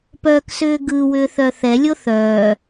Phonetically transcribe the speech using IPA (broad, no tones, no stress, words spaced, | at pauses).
pœːksʏːɡɯ wʏːθœθɛ lʲoθœː